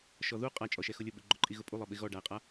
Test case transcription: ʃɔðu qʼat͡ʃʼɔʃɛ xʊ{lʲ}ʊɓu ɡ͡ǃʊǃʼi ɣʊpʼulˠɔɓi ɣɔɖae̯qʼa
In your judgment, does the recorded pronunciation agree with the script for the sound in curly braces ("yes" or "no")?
yes